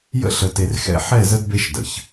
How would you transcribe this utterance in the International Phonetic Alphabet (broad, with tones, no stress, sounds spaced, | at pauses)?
j ə̰˦ ɬ ə˨ t e˨ r x ɛ̰˦ ħ ɛ˦˨ z ə˦ d b e˦ ʃ d ə̰˨ ç